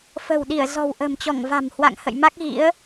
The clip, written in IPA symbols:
f ə̤˨˩ w ɗ i˧˩ ə̯ z ɔ̤˨˩ w ʔ ə̤˨˩ m t͡ɕ ɔ˧˩ ŋ v a̤˨˩ m h w a̰˧˨ ŋ h ə̰˧˨ j m a˦˥ k̚ ɣ ḭ˧˥ ə̯

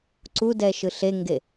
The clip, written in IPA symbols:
ǀ u d ɛ ʃ ɯ ɬ e ŋ ɡ e

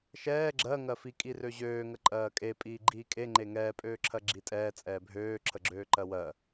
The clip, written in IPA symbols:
ʃ ɛː ɡ͡ǁ ɜ ŋ ɜ f i kʼ i r ø ʑ øː ŋ ə ǃʼ ɜː kʼ e pʼ iː ɡ͡ǃ iː kʼ e ŋ͡ǃ e ŋ ɛː pʼ øː ǁʰ ɜ ɡ͡ǁ i tʼ ɛː t͡sʼ ɛː bʱ øː ǁʰ ə ɡ͡ǁ øː ǃ ɜ w ɜ

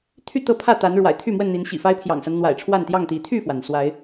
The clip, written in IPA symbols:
t̪ʰ y˥˨ t̪ ɤ˥˨ pʰ ä˥˨ t̪ a˨˦ n ɻ w a̰˨˩ ɪ̯ t̪ʰ y˥˨ m w ə˥˨ n n̪ i˨˦ n ɕ ḭ˨˩ f a˦ ɪ̯ pʰ j ɑ̰˨˩ ŋ s a˦ n n̪ w a̰˨˩ ɪ̯ ʈ͡ʂʰ w a˥˨ n t̪ j ɑ˥˨ ŋ t̪ i˨˦ t̪ʰ y˥˨ f w a˩ n s w a˨˦ ɪ̯

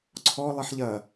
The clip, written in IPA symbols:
ǀʰ ɔ lˠ i ħ ʎ ɐ

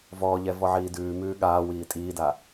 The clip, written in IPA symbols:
v ɔː ʎ ɛ v ɔ ʕ iː d ʉː m ʉː ɠ aː w iː tʼ iː d a

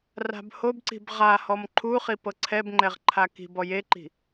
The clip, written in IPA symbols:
r a̤ b h o b ǀ i̤ b ʁ a h ɔ m ǃʰ u χ i p ɤ ǀʰ ɛ b ŋ͡ǃ ɛ ʁ ǃʰ a k i̤ b ɔ j e ǃ i̤

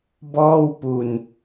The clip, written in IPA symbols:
b ɔː˥˩ w p u˧ n

